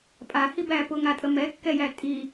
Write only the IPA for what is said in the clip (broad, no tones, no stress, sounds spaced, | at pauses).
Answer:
pʼ a h i b æː p ʊ ŋ a tʼ ə m ɛ kː ɛ j æ tʼ i